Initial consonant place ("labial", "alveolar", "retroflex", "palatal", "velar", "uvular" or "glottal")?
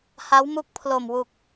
glottal